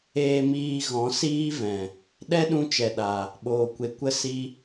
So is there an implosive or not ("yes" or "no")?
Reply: yes